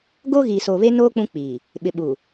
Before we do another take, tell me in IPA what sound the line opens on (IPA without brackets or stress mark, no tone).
ɡ